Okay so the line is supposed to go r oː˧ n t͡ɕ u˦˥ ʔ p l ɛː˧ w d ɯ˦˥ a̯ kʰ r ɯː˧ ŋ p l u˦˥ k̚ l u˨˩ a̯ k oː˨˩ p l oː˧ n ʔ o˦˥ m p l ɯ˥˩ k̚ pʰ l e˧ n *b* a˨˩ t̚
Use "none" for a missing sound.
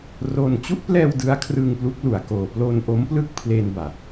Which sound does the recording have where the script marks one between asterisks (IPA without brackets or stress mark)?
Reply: b